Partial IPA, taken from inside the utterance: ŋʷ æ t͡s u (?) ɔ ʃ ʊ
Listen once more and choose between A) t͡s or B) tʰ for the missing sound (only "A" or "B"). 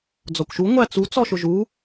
A